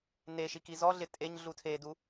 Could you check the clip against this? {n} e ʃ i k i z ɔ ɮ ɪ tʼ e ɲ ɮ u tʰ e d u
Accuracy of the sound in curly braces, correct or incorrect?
correct